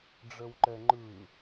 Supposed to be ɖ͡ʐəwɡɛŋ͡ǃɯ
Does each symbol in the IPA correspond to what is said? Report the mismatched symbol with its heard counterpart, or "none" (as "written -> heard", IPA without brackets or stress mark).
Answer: ɡ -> ǃ